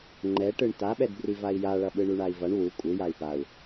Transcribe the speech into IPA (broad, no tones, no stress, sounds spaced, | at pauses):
ŋ͡ǃ ɛ ʈ ɯ ɳ t a ɓ ɛ d b r i v a i̯ j a ɭ ʌ ɓ ɯ ɳ u ɳ a i̯ v ʌ ɳ w u kʷʼ ɯ j a i̯ p a u̯